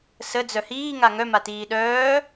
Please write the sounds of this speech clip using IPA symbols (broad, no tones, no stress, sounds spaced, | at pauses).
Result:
s ə d͡z œ h iː ŋ a ŋ œ m a t iː ɗ œː